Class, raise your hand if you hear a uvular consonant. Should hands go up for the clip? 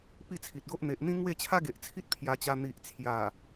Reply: no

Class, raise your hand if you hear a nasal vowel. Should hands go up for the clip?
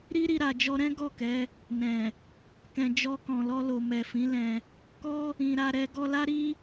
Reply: yes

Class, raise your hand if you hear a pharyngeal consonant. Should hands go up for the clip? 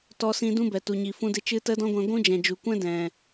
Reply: no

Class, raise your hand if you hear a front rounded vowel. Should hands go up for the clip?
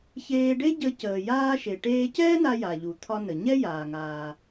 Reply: no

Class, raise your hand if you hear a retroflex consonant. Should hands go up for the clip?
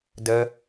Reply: no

